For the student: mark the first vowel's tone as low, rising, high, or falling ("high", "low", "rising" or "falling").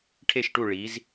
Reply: falling